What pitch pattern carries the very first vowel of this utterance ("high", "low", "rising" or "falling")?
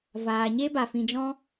low